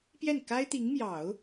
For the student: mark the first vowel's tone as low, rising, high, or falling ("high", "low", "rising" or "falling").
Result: falling